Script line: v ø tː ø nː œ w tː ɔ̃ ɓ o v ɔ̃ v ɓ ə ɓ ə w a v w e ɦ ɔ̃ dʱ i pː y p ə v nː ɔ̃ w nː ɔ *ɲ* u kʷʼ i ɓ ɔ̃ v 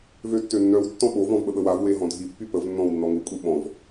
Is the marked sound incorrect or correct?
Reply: incorrect